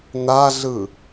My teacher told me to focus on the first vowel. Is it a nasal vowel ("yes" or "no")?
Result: no